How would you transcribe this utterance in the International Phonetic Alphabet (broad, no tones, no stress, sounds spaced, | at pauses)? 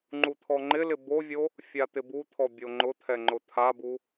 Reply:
ŋ͡ǃ u t̪ʰ ɔ ŋ͡ǃ ɪ l ɪ b o vʲ o | fʲ a t̪ ɪ b u t̪ʰ ɔ bʲ o ŋ͡ǃ ʊ t̪ʰ ɛ ŋ͡ǃ ʊ t̪ʰ a b u